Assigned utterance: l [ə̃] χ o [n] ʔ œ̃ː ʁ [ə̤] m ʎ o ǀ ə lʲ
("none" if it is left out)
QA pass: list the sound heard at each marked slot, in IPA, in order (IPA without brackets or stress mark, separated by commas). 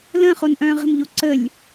ə̃, n, ə̤